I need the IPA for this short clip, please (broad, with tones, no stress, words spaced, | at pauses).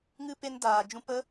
ŋɨ˧ pe˧ndaː˨ d͡ʒũ˧pə˦